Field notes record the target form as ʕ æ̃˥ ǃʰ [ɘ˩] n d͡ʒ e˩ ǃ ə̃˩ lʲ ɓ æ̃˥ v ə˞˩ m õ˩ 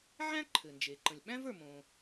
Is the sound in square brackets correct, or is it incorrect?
correct